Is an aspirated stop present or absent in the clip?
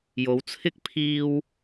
present